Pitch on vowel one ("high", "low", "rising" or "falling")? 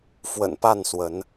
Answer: low